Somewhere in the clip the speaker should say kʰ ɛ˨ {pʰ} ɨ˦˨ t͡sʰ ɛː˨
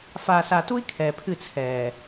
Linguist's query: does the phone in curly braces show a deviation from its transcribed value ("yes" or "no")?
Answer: no